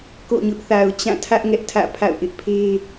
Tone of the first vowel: falling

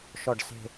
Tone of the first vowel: low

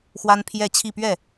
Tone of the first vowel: high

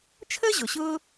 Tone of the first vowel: high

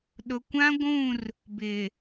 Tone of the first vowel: low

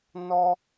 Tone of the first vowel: high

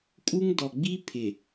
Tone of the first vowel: high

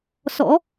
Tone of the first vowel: rising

